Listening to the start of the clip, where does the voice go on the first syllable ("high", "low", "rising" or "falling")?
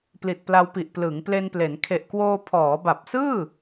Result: low